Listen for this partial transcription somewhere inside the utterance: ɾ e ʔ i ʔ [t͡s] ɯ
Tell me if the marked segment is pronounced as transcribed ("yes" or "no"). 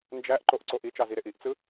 yes